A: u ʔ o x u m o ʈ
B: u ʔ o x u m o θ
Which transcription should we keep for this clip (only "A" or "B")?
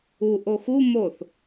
B